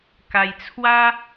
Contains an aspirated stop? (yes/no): yes